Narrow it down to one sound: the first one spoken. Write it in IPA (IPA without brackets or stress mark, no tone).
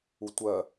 u